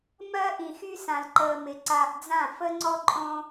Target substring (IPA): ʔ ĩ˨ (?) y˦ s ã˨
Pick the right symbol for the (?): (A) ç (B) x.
B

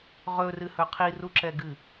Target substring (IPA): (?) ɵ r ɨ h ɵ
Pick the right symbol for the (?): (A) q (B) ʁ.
B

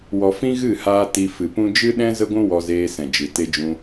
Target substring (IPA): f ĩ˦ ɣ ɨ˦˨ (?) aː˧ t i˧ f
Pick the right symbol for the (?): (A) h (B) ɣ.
A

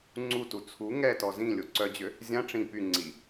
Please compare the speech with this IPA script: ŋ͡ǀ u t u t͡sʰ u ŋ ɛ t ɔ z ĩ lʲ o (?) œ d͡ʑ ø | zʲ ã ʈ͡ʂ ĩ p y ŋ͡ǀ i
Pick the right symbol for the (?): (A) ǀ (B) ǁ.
A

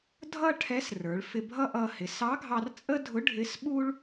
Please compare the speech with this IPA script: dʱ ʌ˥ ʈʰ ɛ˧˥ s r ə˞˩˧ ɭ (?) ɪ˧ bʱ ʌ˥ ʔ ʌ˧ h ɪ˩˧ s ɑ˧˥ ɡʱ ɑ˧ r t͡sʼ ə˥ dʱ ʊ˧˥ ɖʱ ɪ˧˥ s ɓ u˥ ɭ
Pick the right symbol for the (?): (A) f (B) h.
A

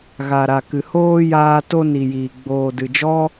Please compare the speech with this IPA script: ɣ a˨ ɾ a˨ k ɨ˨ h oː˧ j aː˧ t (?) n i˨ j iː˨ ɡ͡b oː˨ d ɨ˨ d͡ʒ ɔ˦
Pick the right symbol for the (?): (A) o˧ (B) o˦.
A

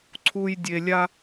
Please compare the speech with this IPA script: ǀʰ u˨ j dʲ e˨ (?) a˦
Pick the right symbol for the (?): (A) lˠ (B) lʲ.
B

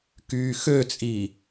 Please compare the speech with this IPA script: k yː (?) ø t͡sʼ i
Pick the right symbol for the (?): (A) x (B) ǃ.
A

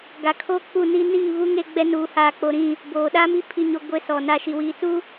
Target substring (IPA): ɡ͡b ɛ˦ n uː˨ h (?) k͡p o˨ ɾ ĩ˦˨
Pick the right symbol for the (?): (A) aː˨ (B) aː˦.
A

